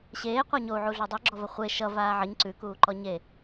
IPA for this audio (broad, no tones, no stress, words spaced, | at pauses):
ɕeː qʷaɲou̯ʕu ɮodˤʉɡ͡ǁɔvɐ χʷe ʃʌ vaːʕʌɲ ǀʉkuːǃɔ ɲe